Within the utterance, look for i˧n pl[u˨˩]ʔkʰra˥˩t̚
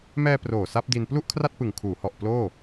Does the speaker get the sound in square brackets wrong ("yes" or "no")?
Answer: yes